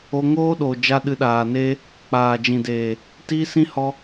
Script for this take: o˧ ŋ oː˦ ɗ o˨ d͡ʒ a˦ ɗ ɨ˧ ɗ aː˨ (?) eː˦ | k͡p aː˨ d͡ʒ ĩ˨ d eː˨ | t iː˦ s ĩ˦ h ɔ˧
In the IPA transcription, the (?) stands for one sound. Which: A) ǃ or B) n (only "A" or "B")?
B